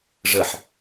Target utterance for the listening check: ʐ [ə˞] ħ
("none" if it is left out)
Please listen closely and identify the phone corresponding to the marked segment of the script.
ə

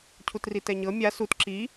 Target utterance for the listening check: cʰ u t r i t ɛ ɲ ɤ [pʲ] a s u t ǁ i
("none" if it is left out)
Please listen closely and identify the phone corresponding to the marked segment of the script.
mʲ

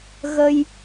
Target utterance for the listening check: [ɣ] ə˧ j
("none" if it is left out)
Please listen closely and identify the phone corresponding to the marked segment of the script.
ɣ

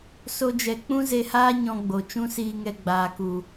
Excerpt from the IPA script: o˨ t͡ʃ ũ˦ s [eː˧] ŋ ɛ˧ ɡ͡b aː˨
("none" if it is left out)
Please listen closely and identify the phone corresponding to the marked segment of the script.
iː˧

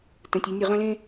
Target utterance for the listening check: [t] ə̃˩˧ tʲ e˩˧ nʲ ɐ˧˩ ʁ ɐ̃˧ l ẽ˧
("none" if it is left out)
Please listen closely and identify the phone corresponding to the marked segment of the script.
t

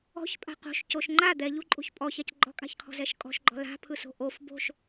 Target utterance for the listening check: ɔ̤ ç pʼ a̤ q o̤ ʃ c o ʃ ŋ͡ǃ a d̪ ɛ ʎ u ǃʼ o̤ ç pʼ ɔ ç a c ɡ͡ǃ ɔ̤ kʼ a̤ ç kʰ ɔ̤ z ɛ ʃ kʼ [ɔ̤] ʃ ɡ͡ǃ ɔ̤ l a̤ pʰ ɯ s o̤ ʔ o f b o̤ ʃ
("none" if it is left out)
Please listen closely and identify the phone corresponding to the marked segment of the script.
ɔ̤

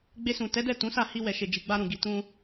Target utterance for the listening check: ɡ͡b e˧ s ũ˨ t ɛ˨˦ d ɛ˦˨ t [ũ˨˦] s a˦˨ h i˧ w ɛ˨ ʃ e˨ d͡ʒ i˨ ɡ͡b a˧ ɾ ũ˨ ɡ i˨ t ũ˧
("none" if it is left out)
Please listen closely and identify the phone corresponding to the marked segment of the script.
ũ˨˦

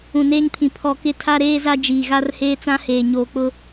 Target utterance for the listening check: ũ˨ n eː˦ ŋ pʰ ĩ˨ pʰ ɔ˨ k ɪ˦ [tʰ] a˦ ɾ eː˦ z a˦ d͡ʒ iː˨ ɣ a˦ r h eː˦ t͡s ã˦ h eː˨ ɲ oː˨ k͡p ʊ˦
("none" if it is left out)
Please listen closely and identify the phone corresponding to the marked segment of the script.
tʰ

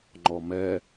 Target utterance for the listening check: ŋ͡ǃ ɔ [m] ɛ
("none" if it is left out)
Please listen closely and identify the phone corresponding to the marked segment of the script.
m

